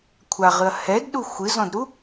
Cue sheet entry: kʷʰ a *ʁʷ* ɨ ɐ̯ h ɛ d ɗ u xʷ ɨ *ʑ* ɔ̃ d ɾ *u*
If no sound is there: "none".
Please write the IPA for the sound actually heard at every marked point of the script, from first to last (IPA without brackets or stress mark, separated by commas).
ʁ, z, u